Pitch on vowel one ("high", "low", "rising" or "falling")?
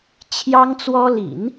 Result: high